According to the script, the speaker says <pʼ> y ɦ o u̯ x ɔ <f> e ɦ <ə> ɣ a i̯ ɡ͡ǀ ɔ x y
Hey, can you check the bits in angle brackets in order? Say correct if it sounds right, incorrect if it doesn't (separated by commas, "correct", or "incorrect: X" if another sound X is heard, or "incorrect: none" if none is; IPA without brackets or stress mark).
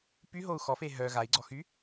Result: incorrect: p, correct, incorrect: œ